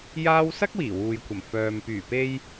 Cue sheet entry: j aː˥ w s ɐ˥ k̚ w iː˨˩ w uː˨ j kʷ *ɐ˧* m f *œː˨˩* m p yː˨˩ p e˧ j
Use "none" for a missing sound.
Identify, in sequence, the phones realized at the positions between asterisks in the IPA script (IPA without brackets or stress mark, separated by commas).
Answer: ɐ˨˩, œː˨